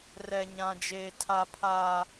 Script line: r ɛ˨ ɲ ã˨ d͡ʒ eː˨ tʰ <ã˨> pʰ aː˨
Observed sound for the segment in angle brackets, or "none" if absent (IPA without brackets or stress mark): a˨